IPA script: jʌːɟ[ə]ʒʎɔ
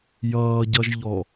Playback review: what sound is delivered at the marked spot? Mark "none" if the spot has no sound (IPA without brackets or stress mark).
ʌ